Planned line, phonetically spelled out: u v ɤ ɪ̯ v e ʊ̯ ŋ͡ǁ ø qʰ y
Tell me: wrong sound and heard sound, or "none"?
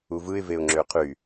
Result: ɤ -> ɯ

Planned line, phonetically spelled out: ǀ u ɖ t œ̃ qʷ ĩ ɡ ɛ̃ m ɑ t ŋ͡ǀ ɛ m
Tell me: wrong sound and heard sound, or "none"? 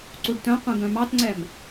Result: ɛ̃ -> œ̃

